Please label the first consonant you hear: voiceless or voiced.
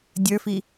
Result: voiced